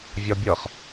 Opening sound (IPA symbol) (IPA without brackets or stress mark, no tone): vʲ